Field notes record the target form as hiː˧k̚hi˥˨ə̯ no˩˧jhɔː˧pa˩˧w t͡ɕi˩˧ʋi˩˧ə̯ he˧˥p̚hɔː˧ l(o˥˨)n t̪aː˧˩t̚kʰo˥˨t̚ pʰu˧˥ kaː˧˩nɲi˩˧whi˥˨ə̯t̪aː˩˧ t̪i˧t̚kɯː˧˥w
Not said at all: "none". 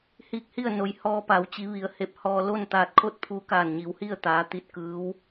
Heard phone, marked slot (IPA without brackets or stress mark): o˥˨